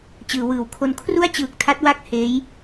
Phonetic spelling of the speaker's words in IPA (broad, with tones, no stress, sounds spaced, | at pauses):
t͡ɕ ɯː˩˦ w ɯː˩˦ w kʰ o˦˥ n kʰ r u˥˩ a̯ t͡ɕ ɯː˨˩ k̚ tʰ a˦˥ t̚ w a˥˩ k̚ h eː˦˥ j